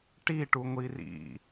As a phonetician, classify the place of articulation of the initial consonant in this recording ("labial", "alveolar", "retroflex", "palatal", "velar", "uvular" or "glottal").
retroflex